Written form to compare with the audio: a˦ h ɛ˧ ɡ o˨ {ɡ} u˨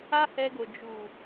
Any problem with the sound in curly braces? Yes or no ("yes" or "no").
yes